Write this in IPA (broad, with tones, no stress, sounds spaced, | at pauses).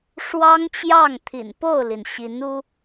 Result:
ʂ w ɑ˥ ŋ t͡ɕ j ɑ˥˩ ŋ t̪ʰ ḭ˨˩ n p o˥˩ ʊ̯ l i˩ n ɕ i˧˥ n u˥